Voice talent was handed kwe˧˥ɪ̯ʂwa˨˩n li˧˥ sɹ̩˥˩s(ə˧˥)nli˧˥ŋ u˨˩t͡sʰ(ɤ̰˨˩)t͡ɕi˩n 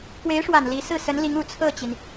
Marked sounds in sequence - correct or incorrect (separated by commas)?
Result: correct, incorrect